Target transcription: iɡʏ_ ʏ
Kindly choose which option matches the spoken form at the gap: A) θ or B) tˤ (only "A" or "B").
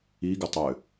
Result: B